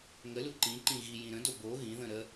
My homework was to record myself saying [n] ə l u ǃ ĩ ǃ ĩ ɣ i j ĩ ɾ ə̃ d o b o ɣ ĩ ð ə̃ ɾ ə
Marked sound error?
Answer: yes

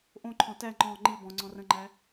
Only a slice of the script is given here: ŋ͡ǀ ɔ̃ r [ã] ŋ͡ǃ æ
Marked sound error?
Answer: yes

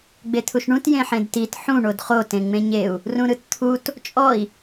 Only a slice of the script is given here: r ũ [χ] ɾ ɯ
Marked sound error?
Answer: yes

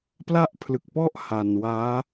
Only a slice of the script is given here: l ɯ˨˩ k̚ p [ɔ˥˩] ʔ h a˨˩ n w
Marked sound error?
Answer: no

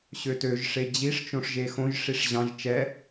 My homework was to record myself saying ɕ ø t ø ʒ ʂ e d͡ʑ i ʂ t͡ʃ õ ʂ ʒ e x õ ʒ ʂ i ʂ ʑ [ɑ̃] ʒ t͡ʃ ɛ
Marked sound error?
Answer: no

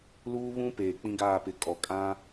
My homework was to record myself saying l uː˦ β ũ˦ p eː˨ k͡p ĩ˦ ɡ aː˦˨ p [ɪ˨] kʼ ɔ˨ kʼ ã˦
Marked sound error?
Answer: no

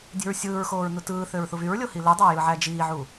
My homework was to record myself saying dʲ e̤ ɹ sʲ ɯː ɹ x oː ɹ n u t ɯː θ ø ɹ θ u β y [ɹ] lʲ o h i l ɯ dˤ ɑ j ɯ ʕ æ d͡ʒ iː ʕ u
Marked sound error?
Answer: no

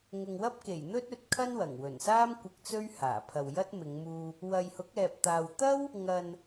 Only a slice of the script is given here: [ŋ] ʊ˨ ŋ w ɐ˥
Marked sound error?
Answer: no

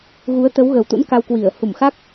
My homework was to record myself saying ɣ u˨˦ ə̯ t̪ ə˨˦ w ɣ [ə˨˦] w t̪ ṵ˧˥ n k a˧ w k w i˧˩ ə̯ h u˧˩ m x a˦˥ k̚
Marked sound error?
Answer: yes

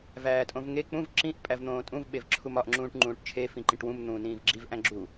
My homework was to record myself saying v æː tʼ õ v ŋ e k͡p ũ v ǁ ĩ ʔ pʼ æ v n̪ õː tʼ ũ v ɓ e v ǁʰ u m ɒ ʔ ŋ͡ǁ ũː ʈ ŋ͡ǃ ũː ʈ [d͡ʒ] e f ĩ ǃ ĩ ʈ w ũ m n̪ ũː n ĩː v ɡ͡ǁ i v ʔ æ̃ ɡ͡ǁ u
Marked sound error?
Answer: yes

